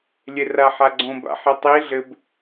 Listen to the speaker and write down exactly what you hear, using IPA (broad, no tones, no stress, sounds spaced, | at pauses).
lʲ e r a ħ a ɡ͡ǀ õ b a̰ ħ e tˤ i ɮ ɘ b